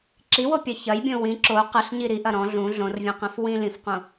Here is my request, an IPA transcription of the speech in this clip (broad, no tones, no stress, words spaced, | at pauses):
ǁiwopʲɐ çɐjbʲõ wĩ ǁo qəɬɲi ɾiʔɐ ɾɔ̃ ɮũ ɮõrvʲõqẽf wĩ lĩfqũ